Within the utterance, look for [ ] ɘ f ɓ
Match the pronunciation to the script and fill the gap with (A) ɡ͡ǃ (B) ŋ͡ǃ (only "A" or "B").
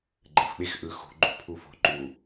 A